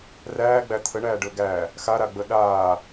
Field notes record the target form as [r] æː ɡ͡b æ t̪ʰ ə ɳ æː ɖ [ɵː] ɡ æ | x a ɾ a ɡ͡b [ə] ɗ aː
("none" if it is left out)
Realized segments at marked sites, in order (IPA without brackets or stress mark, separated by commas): r, ɵː, ə